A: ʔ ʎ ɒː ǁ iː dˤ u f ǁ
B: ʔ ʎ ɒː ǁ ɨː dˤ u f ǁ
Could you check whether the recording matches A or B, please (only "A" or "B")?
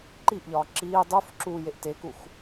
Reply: A